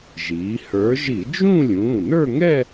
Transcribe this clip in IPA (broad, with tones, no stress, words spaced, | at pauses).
ʒiː˩˧ hə˞˨˥ ʒi˧˩˧d͡ʒũ˥˧ lʲũː˩˧˩nə˞˥˧ŋɛ˥˧